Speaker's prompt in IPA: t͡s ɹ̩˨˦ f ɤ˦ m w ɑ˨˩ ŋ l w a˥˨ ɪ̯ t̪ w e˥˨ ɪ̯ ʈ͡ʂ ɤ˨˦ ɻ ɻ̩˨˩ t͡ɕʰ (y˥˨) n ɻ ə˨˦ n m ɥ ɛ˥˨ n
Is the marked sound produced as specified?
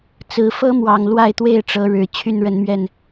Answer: yes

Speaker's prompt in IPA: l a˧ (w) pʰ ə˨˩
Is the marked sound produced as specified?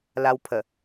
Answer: yes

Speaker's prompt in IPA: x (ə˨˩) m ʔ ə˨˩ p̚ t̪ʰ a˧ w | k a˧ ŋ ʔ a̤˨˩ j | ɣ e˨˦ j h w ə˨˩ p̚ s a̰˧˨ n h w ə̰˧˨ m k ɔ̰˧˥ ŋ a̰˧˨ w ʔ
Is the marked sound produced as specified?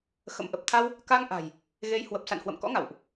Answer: no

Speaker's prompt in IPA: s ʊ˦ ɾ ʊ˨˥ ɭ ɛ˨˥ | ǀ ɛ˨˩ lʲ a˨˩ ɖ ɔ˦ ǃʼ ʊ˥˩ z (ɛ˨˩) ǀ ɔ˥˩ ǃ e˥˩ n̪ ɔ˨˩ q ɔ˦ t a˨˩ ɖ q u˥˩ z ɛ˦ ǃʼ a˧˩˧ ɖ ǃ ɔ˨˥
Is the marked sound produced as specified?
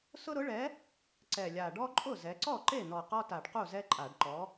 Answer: no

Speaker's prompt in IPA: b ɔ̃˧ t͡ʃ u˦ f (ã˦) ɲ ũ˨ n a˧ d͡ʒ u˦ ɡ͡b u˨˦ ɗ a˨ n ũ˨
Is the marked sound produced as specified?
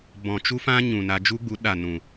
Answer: yes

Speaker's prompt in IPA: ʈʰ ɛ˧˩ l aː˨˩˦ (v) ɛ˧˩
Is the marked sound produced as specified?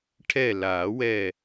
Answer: no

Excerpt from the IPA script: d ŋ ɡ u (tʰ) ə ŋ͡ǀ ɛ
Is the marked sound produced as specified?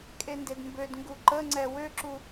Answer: no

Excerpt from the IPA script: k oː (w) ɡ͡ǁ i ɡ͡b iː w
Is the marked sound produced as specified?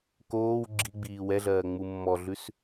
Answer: yes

